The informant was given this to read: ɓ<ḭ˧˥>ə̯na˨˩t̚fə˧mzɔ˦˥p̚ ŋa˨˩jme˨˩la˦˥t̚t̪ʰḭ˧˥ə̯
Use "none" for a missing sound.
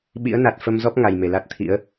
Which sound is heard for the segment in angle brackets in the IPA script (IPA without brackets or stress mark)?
ḭ˧˥